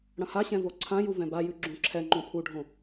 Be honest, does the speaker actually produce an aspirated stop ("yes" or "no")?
yes